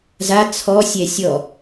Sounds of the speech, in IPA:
z a t͡sʰ ɔ sʲ ɛ sʲ ɔ

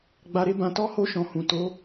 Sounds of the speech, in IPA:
ɡ͡b a˧ ɾ e˦ b ã˧ t ɔ˦ h o˧ ʃ ɔ̃˨ h ũ˨ t o˨˦

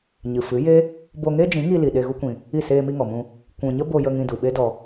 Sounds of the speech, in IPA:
ɲ ɨ˨ f ɨ˨˦ j e˦ | b o˧ ŋ e˦ d͡ʒ ĩ˨˦ ŋ i˧ l i˨ ɗ e˧ ɣ u˦ kʷ ĩ˧ | i˦˨ s eː˧ m i˧ ŋ ɔ˨ m ũ˧ | kʷ ũ˨ ɲ ə˦ b o˧ j ə˧ ŋ ĩ˧ d u˨ ɓ e˦ d ɔ˧

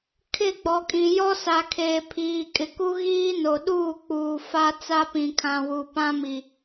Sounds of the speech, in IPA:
kʰ ɪ˦˨ ɡ͡b ɔ˨ kʼ ĩ˨ j ɔ˦ s a˨ kʰ eː˨ pʰ iː˨ kʼ ɪ˨ k u˦ ɣ iː˦ n o˨ ɗ uː˦˨ k͡p uː˨ f a˦ t͡s a˦ p ĩ˨ kʰ ã˨ w u˨ p ã˦ m i˨

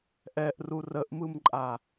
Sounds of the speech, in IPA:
ʔ ɛ ʔ r u r ə ʔ m ɯ m ǃʼ a

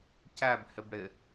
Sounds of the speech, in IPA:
c æ b h ɪ b ɽ ɪ

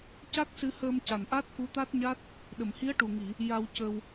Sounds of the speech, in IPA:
c a˦˥ k̚ s ɨ˧ h əː˧ m c a˨˩ n ʔ a˦˥ t̚ k u˧˥ t̪ a˦˥ t̚ ɲ a˦˥ t̚ | ɗ ə˨˩˨ m h i˧˥ ə̯ ʈ u˨˩ ŋ i˨˩˨ | j a˧ w c ə˧ w

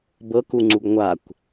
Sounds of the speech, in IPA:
b ɤ k u ŋ͡ǀ u ɡ ŋʷ a kʷ

